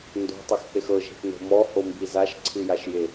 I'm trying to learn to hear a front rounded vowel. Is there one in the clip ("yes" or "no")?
no